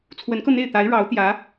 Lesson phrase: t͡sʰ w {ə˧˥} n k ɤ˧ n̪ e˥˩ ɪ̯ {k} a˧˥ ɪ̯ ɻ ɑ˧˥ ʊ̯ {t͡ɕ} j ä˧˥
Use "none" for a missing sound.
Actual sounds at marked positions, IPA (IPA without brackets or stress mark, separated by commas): ə˧˥, t̪, t̪